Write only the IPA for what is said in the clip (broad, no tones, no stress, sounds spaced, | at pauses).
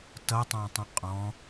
t ʌ tˤ ɑ̃ tˤ ə̃ qʼ ɔ̃